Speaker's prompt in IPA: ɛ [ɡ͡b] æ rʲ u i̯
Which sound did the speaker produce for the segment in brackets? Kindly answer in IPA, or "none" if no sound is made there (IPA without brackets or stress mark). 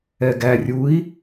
ɡ